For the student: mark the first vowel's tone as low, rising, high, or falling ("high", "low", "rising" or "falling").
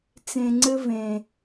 low